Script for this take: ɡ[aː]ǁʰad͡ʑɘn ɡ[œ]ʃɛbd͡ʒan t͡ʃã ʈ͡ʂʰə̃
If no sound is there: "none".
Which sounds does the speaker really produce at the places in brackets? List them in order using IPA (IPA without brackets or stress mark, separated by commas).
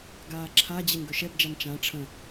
aː, œ